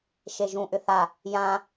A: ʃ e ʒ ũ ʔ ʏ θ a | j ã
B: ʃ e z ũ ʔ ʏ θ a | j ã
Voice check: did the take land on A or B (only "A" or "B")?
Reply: A